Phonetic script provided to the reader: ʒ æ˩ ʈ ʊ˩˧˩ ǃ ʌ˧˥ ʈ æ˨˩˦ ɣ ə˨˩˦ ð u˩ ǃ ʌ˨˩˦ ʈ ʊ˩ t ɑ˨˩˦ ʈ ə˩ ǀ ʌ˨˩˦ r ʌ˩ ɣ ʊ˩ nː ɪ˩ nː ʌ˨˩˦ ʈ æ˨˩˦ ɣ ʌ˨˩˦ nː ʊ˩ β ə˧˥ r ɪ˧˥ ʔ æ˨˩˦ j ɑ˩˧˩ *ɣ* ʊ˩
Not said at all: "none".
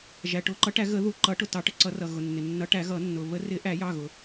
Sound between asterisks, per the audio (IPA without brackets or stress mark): ɣ